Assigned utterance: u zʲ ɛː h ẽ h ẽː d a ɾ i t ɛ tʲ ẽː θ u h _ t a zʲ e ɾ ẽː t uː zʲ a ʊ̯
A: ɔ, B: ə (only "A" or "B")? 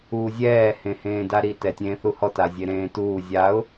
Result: A